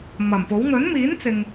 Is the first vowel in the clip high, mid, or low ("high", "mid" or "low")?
low